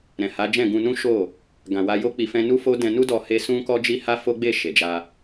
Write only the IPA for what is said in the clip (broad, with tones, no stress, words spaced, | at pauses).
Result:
ɾɛ̃˨ha˨˦d͡ʒɛ̃˦˨ ɡũ˧nũ˦ʃo˦˨ | ɡã˨wa˧jo˦ k͡pi˧fɛ̃˦ nu˦fo˦ dɛ̃˧nu˦dɔ˧ he˦ sũ˦kɔ˦d͡ʒi˦ ha˦fo˦ɡ͡be˦˨ ʃe˨d͡ʒa˧